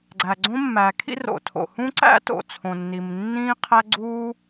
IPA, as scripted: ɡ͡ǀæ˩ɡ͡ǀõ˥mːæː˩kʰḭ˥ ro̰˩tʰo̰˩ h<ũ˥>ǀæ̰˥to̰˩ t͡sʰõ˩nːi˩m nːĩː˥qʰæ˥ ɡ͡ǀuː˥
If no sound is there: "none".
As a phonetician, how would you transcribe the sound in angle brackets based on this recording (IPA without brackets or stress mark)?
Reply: ũ˥